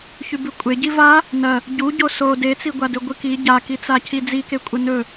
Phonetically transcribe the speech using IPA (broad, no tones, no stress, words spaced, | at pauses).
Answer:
çʉbʉkʷʼeɟi va | nɐ | ɟu ɟoso det͡siɡʷadɵ ɡʷɨki ɟakit͡sa cʰid͡zikekʷʼɐ nɵ